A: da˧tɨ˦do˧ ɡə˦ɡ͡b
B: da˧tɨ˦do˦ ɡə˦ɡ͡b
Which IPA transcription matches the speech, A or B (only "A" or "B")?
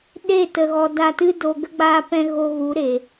A